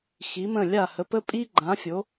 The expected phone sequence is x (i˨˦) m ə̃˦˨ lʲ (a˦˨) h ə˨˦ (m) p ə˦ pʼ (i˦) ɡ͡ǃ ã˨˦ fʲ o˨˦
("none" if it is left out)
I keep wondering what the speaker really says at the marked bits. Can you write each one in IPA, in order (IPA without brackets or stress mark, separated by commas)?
i˨˦, a˦˨, none, i˦